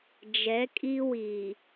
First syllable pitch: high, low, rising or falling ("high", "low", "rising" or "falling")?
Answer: rising